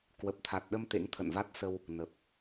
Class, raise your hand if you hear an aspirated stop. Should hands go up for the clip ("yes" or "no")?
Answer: yes